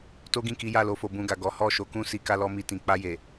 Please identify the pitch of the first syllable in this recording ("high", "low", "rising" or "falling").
high